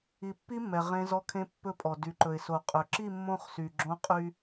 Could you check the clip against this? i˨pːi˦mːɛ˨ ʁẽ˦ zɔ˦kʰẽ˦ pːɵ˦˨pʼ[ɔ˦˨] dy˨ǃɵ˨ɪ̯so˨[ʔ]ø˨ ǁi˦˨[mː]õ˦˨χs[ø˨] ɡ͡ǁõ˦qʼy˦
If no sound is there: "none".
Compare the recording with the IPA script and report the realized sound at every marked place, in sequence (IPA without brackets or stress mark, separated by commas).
ɔ˨, qʼ, mː, y˨